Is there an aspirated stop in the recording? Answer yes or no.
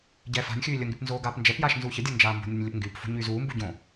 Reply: no